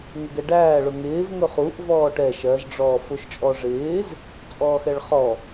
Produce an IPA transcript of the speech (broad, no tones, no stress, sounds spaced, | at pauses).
ŋ ɪ ɡ ɛ ɖ æː ɭ ʊ ŋ ɪː v ŋ ʊ χ u ʔ v ɔː ʈ ɛ ʃ ɜ z ɖ͡ʐ ɔː f ʊ ʃ t͡ʃʼ ɔ ʐ ɪː z | t͡sʼ ɔː x ɛ ɭ χ ɔ